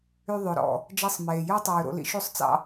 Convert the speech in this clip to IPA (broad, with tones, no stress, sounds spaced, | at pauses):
y˧ ðˤ ø˨ ɾ ɔ̰˨ | d͡ʒ ɛ˧ sˤ m eː˨ j œ˦ tˤ ʉː˨ ɾ o̰˧ l ḭ˦ ʃ y˦ sˤ t͡s ɑ̰˦